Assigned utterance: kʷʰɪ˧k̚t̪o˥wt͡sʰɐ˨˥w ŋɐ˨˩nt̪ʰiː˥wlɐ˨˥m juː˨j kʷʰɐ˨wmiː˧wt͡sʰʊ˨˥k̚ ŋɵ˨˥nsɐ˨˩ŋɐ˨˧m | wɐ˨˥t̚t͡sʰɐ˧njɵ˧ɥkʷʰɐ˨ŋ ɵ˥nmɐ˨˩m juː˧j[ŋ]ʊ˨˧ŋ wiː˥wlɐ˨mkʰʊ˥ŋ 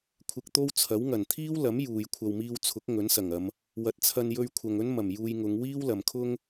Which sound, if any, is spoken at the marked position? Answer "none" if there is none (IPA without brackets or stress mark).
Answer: ŋ